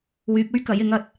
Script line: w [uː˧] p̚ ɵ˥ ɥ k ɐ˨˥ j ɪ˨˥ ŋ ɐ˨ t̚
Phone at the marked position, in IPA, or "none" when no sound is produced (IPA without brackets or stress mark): yː˧